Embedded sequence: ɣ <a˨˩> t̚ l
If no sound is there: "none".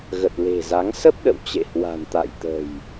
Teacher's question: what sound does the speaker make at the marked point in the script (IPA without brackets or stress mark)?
ə˨˩